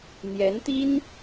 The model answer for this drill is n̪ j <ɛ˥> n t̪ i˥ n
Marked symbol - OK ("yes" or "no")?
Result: no